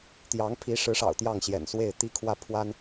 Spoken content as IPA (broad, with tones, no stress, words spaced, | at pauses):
t̪jɑ˧˥ŋpʰi˧˥ʂɻ̩˧˥ʂɑ̰˨˩ʊ̯ t̪jɑ˥˩ŋɕjɛ̰˨˩nswe˥˩ɪ̯ t̪i˥kʰwä˥˩ pʰwa˥n